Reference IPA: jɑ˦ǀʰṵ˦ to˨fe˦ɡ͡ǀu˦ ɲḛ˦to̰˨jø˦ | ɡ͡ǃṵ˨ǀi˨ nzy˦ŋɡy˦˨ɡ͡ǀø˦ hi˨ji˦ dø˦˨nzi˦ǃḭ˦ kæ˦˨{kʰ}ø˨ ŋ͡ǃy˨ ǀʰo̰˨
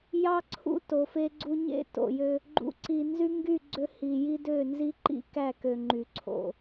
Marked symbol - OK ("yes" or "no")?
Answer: no